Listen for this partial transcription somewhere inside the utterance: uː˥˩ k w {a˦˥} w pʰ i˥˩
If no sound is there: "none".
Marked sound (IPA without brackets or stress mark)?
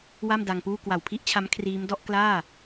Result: a˨˩